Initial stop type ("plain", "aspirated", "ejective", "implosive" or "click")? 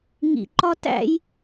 click